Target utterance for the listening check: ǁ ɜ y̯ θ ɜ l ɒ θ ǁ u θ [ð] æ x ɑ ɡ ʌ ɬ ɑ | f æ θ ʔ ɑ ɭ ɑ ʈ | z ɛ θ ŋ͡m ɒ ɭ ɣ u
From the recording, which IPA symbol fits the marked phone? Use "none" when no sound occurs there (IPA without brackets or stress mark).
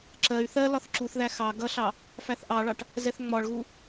ð